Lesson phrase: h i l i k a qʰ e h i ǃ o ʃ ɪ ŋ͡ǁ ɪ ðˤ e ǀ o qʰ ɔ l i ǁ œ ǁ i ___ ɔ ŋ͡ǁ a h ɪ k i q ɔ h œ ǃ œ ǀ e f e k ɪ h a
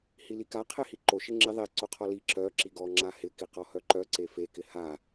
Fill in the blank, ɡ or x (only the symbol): ɡ